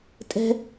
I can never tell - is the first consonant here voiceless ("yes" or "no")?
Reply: yes